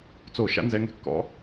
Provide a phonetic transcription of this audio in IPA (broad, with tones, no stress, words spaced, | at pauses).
t͡so˧˩˧ ʃa̰˦nzɛ˨˦ŋɛ̤˩ kːɔ̰˨˦